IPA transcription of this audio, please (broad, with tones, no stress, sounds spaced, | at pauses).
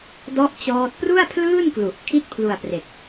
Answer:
d ɔ˥˩ ʔ t͡ɕ ɔː˦˥ t̚ p r u˥˩ a̯ pʰ l ɯː˥˩ n k l u˨˩ ʔ kʰ i˥˩ t̚ pʰ l u˧ a̯ p r e˨˩ k̚